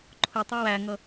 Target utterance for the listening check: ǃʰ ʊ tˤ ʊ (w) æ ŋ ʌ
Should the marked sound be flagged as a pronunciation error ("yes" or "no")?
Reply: no